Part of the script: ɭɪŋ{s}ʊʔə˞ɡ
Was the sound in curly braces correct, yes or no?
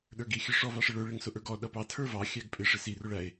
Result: yes